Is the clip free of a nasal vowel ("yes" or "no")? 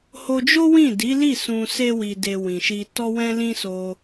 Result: no